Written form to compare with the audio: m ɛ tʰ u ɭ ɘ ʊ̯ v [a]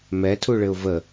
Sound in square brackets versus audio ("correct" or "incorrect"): incorrect